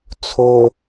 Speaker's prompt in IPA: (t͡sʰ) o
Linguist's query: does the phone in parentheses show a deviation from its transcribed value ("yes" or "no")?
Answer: no